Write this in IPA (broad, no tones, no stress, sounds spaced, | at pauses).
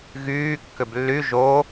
ɣ yː kː ʏ b lː y ʒ o